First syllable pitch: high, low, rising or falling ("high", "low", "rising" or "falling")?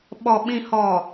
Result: low